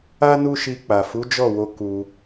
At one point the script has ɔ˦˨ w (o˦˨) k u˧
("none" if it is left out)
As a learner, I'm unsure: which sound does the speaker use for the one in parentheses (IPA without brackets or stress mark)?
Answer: o˧